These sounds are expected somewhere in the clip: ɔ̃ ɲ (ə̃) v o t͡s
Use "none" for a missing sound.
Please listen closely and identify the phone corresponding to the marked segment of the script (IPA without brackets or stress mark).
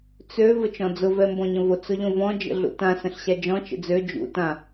ə̃